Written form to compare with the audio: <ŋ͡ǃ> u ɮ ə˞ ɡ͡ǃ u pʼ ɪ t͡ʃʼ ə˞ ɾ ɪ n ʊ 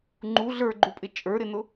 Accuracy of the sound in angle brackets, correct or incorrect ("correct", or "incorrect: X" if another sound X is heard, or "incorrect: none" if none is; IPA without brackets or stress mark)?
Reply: correct